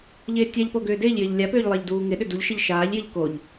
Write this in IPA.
ʎ ɪː tʲ a ʎ p o ɡ ʏː d ɪː ʎ j ɪː ʎ lʲ a p ʏː ʎ lˠ ɪː ʎ d uː ŋ ɪ ɗ ʏ d u ʎ ʃ ɪ ʎ ʃ aː ʎ j ɪ ʎ k o ʎ

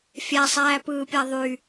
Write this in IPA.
fʲ æ sˤ æː p ɯː pʲ æ ðˤ y

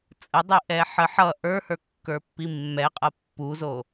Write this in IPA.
t͡sʼ ə dˤ i ʔ ɛ ħ ə ħ ʌ ʔ ə˞ h ə˞ kː ə˞ pː i mː ɛ qʼ ʌ pː u z o

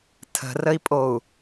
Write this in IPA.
tʰ ə̤ r ə i̯ pʼ o u̯

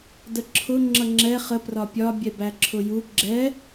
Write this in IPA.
d ə ǁʰ ʊ ŋ͡ǁ ʌ ŋ͡ǁ ɛ χ ə p r ɒ pʲ ɒ bʲ ɛ b æ ǁʰ ʊ j u ɡ͡ǁ ɛ

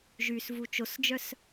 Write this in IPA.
ʒ y s v u t͡ʃ o s d͡ʒ œ s

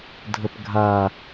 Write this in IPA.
dʱ ə p ɡʱ a

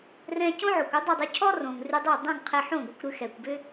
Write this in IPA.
r ɛ̃˧ c õ˥ ʕ o˩ kʷ ʏ˥ dˤ ʏ˥˩ dˤ ʉ˧ cʰ ɔ˥ r õ˩ ŋ r ʉ˧ dˤ o˥˩ dˤ õ˥˩ ŋ qʰ ɛ˧ ħ õ˥˩ ɡʷ ɛ˧ kʷ ɾ ʉ˧ x ɛ˩ kʷ b ʏ˥

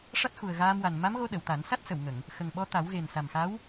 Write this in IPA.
ʂ a˦˥ t̚ x u˨˩ ə̯ ɣ aː˧ m w a˨˩ n m a˧˥ m ɣ o˧ ɗ ə˨˩˨ w t̪ a˨˩˦ n s a˦˥ t̚ s ə˨˩˨ w ŋ ə˨˩˨ ŋ | x ə˨˩ ŋ ɓ ɔ˧ t̪ a˨˩˦ w ɣ e˨˩ n s a˨˩ m x a˧˥ w

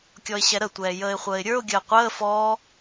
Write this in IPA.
kʲ ɔ ɪ̯ ɕ ɛ ɾ ə tʷ ɛː j əː ɪ̯ χʷ əː ɪ̯ ɾʲ ə˞ ʊ̯ ɡʲ əː qʷ əː f ɔː

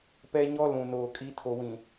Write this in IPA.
p ɛ˦ ɲ ɔ˦ l ũ˨ n oː˨ kʼ i˦ tʰ o˨ w ĩ˨

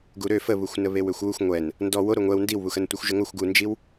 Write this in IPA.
ɡ u ɾ ø f ə β u xʷ n ə β e w ø xʷ w u xʷ ŋʷ ɛ n | n d ɔ w o ɾ o ŋʷ ɛ w n d i w β u x ə n tʷ e xʷ ʒ ə ŋ o xʷ ɡ u n d͡ʒ i w

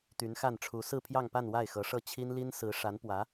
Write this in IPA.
t̪ y˧˥ n x a˥˩ n ʈ͡ʂʰ u˧˥ s ɹ̩˥˧ pʰ j ɑ˥˧ ŋ p a˥˧ n w a˥˩ ɪ̯ x ɤ˧˥ ʂ ɤ˥˩ t͡ɕʰ i˥ n l i˥ n s ɹ̩˧˥ ʂ a˧˥ n p w ä˧˥

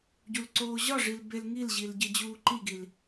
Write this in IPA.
ɟ u l ǀ oː ʑ ɒ ʐ i l b e l ŋ i l ʑ i l ɟ e d͡ʑ uː ǃ i ɡ i l

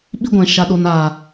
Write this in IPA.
ɓ i˦ ɡʷ ɛ̃˨ ʃ a˨ ɗ o˨ n aː˨

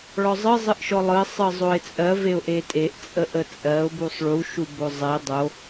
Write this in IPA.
ɭ ɔ zˤ ɯ zˤ ɯ ʔ ʃ ɔ lˠ ɯ ə̯ sˤ ɯ zˤ o ɪ̯ t͡sʼ ɜ v e ʊ̯ ʔ e tʼ e ʔ t͡sʼ ə ʔ ə t͡sʼ ɜ ʊ̯ b u sˤ ɭ u ʃ u b o zˤ e dˤ o

